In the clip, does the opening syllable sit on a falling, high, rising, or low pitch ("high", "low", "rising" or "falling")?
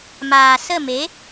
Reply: low